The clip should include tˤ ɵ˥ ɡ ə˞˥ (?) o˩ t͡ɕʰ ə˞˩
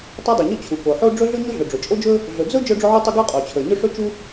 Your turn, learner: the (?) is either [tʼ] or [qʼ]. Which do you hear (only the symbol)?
qʼ